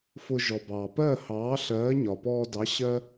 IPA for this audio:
f ʊ˧ ʒ ɔ˩ b ɑː˩ p ɜ˥˨ h ɑː˨˥ ɬ ɜː˨˥ ɲ ɒ˩ p ɔː˧ d ɑ˨˥ ɕ ɜ˥

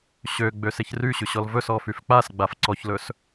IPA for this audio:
ɕ ø ɡ͡b ø s e ç r y ɕ ʉ ɕ ɔ l v ɵ s ɔ f y f k͡p a s ɡ͡b a f ǀ ɔ ç l ɵ s

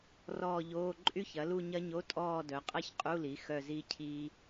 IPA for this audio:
r ɔː˦˨ ʎ oː˧˥˧ ǃʼ y˦˥ ç ɐ˩˥ l u˦˨ ɲ ɐ˦˥ ɲ o˧˥˧ tʼ ɔː˦˨ d œ˩˥ qʼ ɐ˦˥ ç qʼ u˧˥˧ l i˩˥ x œ˦˨ z i˦˥ cʰ i˦˥

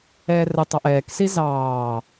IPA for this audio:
ɛː r ə tˤ ɑ ʔ ɛː k s i z ɑː

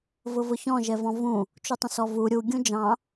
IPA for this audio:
v ʊ v ʊ ç ɔ̃ ʒ ɛ v ɔ̃ v ũ | t͡ʃ u tˤ ə̃ s ɔ v u ɾʲ u ɡʲ ũ d͡ʒ ɑ̃

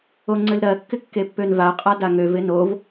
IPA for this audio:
o ŋ͡ǀ ɘ l ɾ ɜ kː ɪ kː e pː ø n v a ɐ̯ qʼ a d a ŋ ø v ɪ n o v

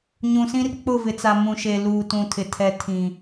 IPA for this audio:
ɲ ũ˨ s ĩ˦ r k͡p ʊ˦˨ v ɪ˨ t͡s a˨ m ũ˨ ʃ e˨ l uː˨ t ũ˨ tʰ ɪ˨ tʰ ɛ˨ tʰ ĩ˨

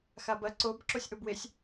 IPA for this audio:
x a b ɐ ǀ o b ǁ o sʲ ʔ o b w e sʲ

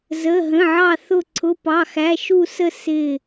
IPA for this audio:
z ə˩˧˩ ɦ ə̃˩˧˩ ʕ ɑ˧˩ θ ʊ˧˩ ǀʰ ʊ˩˧˩ p ɑ˩˧˩ x æ˩˧˩ ʃ u˧˩ s ə˧˩ s ɪ˧˩

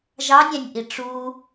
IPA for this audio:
ʒ ɑ nʲ æ̃ nʲ ʔ i ʈ͡ʂ u

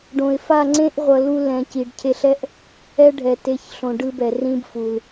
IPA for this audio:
ɖ õ˨ ɪ̯ f a˦˨ ŋ͡ǀ ẽ˦ ʔ ʁʷ ʌ˨ l u˧ l ɛ̃˨ c i˨ ɖ cʰ e˧ ɬ ɛ˦ ʔ | ɛ˦ ɖʱ ɛ˨ t e˨˦ ç ɬ õ˨ ɖ ɯ˦ b ɛ˨ r ĩ˦ b f u˨ l

